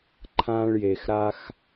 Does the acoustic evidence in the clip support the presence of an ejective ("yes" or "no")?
no